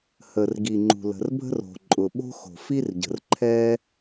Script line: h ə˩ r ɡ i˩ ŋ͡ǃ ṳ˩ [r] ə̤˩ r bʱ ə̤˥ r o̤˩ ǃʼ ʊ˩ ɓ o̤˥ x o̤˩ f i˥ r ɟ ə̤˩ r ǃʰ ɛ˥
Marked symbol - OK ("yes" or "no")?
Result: no